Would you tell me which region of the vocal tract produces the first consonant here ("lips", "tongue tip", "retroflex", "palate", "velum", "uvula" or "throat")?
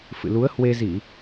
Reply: lips